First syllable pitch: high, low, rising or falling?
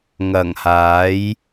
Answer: low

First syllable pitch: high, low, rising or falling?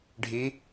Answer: rising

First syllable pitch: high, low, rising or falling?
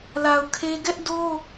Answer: low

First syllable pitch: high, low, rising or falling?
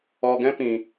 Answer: low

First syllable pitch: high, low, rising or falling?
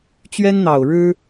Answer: high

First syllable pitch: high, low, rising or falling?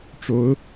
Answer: rising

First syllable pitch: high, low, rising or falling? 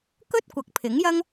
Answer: high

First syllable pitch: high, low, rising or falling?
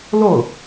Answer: falling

